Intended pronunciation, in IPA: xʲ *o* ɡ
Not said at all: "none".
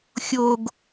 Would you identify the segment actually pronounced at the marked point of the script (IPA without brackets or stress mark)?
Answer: o